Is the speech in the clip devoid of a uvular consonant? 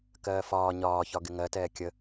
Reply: yes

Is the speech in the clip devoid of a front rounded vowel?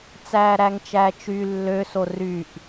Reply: no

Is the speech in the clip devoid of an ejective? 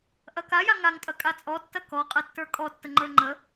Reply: no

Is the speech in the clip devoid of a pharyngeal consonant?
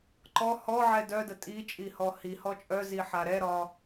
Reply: no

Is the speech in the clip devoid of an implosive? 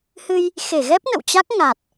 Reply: yes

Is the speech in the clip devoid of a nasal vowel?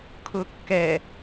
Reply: yes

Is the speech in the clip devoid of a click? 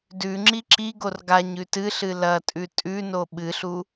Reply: no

